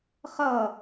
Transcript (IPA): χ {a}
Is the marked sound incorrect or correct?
incorrect: ʌ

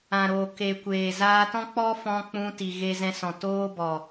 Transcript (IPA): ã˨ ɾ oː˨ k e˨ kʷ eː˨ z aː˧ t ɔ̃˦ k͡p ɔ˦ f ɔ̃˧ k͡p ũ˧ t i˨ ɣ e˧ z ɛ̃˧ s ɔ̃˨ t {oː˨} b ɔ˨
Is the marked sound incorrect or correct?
incorrect: oː˧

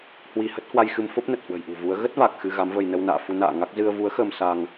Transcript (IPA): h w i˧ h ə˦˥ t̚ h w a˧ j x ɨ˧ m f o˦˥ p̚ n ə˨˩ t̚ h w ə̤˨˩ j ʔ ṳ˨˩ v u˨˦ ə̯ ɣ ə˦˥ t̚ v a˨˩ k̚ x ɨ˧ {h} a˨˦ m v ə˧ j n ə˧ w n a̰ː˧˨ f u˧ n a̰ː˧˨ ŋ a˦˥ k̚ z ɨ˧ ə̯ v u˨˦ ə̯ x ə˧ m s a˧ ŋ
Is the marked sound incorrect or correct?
incorrect: ɣ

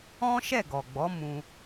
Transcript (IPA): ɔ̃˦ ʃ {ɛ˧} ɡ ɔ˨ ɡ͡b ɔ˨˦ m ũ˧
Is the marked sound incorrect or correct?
incorrect: ɛ˦˨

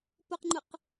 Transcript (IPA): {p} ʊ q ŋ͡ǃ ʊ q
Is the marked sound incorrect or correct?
correct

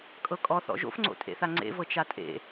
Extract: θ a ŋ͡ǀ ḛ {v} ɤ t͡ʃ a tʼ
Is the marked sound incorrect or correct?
correct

